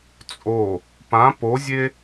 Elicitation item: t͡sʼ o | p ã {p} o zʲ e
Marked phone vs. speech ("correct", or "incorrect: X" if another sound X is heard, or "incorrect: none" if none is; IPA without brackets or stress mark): correct